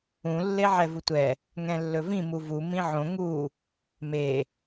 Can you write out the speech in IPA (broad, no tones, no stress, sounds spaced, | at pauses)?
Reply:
ũ lː e ʕ ɛ v u tʷ ɛ | ŋ ɛ̃ lː ɵ v ĩ m u v u m ĩ ʕ õ ŋ u | m e